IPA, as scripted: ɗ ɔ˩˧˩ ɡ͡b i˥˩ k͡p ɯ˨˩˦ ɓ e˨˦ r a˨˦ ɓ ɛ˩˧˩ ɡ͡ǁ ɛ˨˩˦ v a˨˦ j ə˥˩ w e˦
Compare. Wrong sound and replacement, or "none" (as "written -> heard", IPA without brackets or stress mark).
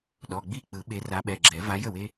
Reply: none